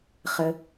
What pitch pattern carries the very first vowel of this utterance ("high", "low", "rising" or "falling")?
low